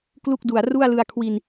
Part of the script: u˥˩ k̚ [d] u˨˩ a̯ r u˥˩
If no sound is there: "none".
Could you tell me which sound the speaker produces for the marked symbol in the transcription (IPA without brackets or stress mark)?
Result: d